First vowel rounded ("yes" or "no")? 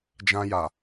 no